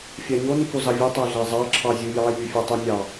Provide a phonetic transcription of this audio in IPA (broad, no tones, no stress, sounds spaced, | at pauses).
fʲ ɑ ɲ o n i k o z ɑ vʲ ɯ tˤ æ ɮ æ zˤ ɑ ǁʰ ɑ zʲ ɯ j ɑ j y fʲ e tˤ y nʲ ɑ